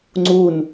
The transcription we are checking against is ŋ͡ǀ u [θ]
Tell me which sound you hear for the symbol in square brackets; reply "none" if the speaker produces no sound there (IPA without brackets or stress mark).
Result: n